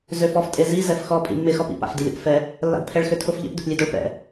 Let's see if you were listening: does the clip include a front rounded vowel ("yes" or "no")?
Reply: yes